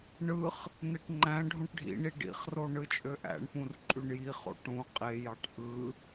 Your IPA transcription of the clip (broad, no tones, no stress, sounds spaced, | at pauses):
ɳ ɯ χ | n e ʈ ŋ͡ǃ æ̃ ɖʱ ũ ʈ ɖʱ ḭ ɳ i ɖ ḭ χ r o ɳ ɯ t͡ʃʼ ø ʔ æ̰ ɳ p ũ r ǃʼ y ɳ j i χ o̰ ʈ ũ qʼ e j ɑ ʈ ʔ ɯ